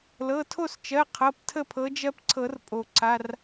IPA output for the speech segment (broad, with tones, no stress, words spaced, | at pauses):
lɤ˩˧˩tʰo˥˨st͡ʃɜ˩˧˩ qʰɤ˩˧˩ptʰə˥˨pʰɤ˨˦d͡ʒɜ˦p ǀʰɤ˨˩˦rpʼo˩ǀa˩˧˩r